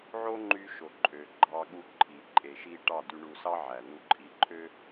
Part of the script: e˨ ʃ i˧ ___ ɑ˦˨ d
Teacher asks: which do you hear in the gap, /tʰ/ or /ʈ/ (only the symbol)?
ʈ